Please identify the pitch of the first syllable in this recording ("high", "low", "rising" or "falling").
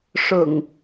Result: low